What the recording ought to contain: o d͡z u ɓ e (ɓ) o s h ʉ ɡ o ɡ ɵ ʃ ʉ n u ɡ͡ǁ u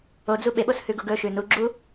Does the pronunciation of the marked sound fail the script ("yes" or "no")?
no